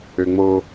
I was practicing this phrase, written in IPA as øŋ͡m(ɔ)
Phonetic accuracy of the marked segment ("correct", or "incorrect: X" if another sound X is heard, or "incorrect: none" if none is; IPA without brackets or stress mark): incorrect: o